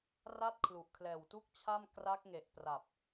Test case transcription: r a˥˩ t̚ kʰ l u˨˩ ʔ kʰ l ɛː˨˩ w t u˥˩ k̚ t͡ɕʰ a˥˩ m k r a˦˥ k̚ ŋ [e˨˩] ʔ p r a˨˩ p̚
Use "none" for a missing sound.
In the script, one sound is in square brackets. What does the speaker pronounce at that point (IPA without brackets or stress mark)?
e˨˩